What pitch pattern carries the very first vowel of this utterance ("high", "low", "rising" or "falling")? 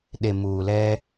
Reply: low